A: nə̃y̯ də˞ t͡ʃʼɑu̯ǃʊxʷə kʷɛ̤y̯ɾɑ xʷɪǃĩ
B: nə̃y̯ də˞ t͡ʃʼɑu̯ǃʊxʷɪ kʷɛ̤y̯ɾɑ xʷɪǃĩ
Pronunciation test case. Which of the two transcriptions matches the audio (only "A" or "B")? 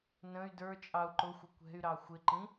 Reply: B